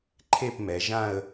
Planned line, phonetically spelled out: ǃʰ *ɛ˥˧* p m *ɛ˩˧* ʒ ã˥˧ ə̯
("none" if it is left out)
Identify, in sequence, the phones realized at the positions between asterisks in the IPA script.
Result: e˥˧, ɛ˩˧

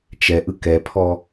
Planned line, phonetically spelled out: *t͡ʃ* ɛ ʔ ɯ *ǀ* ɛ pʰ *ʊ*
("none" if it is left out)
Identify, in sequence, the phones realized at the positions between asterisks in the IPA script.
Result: t͡ʃ, k, ɔ

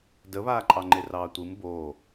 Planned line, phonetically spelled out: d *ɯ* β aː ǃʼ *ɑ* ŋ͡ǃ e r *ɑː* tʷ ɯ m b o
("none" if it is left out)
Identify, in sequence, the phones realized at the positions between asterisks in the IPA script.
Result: ə, ɑ, ɑː

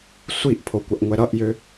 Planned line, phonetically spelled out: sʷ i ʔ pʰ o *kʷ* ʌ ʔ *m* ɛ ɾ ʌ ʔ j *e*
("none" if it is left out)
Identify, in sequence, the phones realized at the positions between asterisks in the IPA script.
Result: kʷ, ŋʷ, ø

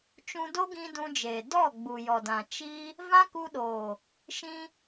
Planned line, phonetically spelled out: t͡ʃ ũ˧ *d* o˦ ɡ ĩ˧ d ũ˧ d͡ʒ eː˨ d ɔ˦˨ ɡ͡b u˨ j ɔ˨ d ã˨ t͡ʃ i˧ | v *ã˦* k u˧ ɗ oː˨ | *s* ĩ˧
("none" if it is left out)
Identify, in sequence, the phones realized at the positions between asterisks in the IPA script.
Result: d, ã˦, ʃ

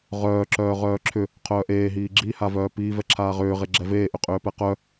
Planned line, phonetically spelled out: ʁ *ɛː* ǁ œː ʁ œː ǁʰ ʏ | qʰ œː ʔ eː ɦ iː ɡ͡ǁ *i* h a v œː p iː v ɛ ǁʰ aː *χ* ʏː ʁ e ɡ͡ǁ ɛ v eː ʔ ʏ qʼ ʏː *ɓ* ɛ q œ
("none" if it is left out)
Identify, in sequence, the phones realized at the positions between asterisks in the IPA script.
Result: œː, i, ʁ, p

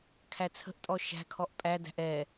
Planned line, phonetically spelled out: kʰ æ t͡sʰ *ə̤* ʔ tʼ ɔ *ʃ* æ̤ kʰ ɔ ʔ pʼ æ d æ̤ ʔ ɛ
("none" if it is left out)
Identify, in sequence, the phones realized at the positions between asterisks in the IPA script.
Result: ə̤, ʃ

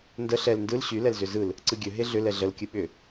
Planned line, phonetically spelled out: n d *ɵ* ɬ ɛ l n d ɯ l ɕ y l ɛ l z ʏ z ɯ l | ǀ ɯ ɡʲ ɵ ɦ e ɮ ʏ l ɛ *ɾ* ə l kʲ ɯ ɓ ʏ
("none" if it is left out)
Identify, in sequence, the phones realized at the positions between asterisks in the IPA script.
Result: ə, ɮ

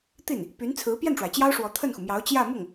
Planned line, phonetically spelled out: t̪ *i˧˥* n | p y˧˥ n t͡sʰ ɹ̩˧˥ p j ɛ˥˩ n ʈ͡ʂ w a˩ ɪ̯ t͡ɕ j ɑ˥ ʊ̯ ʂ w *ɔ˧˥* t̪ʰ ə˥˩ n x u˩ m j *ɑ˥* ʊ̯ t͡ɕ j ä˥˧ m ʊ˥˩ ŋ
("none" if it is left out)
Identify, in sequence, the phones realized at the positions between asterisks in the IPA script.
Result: i˥˩, ɔ˧˥, ɑ˧˥

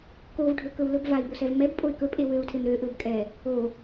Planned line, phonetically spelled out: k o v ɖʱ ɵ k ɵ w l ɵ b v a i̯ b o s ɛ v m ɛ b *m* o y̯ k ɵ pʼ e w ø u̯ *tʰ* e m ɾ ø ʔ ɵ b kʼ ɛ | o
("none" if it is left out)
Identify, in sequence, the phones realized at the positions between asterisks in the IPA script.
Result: pʼ, tʰ

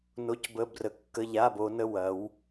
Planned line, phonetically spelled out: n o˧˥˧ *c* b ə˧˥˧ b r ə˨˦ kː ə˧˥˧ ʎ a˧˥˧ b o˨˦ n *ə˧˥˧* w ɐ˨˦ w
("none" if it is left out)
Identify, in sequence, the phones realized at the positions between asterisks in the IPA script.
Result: c, ə˧˥˧

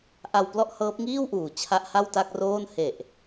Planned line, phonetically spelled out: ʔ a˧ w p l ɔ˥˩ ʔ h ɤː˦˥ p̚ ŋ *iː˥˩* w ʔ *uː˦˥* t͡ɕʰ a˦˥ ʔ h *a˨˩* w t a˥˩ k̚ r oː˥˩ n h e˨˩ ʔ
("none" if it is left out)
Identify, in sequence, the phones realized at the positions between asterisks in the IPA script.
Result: iː˥˩, uː˨˩, a˥˩

